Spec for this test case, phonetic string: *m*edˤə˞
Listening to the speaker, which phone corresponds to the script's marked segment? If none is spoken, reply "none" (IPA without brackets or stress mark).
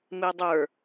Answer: m